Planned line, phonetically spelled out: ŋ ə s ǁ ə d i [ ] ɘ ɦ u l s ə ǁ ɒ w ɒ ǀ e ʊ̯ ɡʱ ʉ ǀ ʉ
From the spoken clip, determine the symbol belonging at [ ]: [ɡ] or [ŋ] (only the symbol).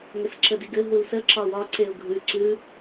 ɡ